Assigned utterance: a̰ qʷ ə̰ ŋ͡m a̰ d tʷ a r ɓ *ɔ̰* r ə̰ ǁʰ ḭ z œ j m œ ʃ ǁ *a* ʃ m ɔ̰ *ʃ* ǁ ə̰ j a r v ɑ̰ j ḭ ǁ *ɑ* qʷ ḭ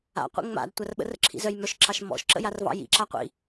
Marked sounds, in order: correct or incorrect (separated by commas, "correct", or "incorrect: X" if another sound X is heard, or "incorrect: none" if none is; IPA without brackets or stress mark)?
incorrect: ə̰, incorrect: ɑ, correct, incorrect: a